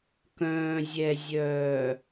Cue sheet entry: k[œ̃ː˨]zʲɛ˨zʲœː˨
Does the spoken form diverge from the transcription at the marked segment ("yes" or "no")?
no